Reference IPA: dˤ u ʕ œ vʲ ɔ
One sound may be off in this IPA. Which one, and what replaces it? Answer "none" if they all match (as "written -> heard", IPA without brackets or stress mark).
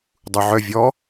none